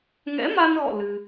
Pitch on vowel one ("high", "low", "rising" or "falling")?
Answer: rising